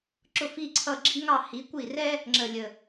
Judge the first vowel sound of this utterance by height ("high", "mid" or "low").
high